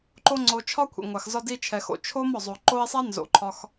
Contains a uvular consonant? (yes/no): no